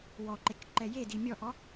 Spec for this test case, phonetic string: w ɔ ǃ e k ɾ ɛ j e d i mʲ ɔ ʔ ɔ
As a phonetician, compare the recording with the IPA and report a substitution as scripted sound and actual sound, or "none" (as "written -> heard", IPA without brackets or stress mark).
ɾ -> ǃ